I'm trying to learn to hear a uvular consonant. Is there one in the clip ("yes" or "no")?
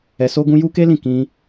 no